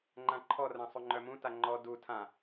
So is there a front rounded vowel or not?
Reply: yes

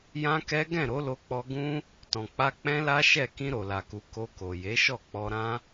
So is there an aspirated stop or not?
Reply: no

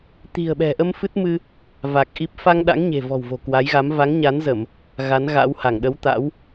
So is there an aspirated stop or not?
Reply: no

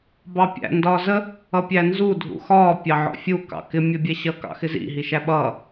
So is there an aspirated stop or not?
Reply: no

